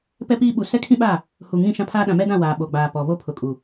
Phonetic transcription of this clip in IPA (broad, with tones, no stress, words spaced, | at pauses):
pɛ˦piː˦ ɓu˨sɛ˦kʰĩ˦ɓaː˦˨ | hu˨ŋĩ˦˨ʃã˦pʰaː˦ ɗã˨mɛ˦dã˦˨ waː˨ ɓo˨ɡ͡baː˨ pɔ˨ βo˦ pʰʊ˨kʼu˨